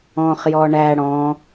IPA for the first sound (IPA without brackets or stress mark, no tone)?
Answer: ɔ̃